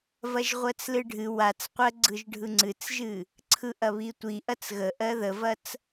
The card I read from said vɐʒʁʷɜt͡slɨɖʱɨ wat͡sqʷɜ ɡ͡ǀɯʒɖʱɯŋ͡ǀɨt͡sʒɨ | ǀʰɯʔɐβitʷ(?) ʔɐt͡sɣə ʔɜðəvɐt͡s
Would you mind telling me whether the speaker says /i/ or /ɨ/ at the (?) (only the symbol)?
i